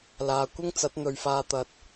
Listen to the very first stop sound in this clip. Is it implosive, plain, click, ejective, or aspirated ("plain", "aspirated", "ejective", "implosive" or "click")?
plain